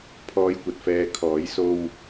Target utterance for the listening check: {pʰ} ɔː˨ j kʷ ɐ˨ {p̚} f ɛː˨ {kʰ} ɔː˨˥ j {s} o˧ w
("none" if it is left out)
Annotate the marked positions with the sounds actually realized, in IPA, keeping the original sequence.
pʰ, t̚, kʰ, s

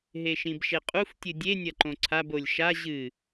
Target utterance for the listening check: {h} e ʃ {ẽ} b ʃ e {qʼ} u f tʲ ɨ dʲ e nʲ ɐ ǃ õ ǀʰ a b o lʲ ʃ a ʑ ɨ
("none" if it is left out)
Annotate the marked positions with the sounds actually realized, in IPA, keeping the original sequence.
ɦ, ĩ, qʼ

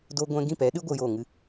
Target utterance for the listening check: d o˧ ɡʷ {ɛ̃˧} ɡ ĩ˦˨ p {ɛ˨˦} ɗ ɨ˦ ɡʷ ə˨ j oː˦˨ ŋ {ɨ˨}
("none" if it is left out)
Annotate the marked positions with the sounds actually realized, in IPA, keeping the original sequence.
ɛ̃˧, ɛ˨˦, ɨ˦

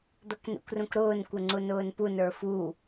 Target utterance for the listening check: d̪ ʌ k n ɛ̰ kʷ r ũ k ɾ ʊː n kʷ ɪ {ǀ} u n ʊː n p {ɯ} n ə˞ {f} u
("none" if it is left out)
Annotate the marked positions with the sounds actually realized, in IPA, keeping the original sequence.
ŋ͡ǀ, u, f

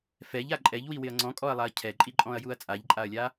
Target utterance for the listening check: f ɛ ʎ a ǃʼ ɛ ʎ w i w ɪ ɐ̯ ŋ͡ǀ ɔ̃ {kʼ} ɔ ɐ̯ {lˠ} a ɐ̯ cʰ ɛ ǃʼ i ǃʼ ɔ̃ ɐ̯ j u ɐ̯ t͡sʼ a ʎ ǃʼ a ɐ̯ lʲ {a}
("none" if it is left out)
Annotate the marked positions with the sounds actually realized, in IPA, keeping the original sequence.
kʼ, lˠ, a

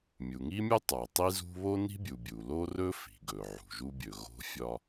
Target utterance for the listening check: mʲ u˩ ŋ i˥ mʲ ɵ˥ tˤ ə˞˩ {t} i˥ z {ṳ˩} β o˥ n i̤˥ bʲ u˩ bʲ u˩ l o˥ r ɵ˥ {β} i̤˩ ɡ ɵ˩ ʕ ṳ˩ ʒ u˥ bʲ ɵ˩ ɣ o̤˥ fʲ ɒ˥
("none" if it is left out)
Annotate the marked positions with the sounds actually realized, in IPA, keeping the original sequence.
tˤ, ṳ˥, f

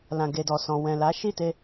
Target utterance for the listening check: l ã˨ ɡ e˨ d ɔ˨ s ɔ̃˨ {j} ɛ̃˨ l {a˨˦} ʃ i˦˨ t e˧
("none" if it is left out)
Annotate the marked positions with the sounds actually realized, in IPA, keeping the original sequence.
w, a˨˦

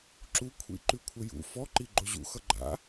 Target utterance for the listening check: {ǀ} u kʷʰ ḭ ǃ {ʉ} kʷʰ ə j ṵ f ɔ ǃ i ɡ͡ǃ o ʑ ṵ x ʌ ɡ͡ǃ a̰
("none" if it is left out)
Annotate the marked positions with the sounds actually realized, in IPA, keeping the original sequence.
ǁ, ʉ

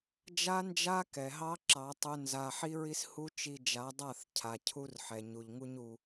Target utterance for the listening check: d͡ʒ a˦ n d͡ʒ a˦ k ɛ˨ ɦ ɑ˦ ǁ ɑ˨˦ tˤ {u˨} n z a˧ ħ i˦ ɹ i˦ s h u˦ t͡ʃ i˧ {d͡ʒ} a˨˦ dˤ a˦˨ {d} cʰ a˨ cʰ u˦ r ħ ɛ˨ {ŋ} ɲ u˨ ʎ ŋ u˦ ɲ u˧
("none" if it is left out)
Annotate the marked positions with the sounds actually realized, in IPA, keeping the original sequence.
u˧, d͡ʒ, θ, none

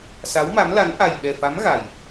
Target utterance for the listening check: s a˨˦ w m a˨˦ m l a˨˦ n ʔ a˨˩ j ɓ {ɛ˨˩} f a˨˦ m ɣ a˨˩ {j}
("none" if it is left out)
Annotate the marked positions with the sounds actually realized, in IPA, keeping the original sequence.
ɛ˨˩, j

